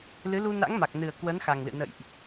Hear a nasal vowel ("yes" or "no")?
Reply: no